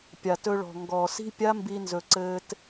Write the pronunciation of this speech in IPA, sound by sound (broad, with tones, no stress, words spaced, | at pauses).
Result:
pʲa˨tɵ˧ɭɔ̤˨ ŋɡɔː˨si̤˦ pʲa˦mbi˧nzɵ˨ ǀɘː˦t